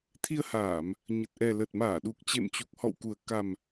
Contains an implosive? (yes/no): yes